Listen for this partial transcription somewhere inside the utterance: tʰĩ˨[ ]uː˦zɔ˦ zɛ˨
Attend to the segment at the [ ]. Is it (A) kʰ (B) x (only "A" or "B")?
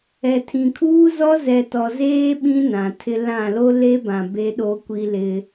A